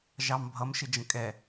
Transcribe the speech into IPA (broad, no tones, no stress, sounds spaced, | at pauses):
ʒ ɑ m bʱ ʌ m ʃ ɪ d͡ʒ ə̃ kʼ ɛ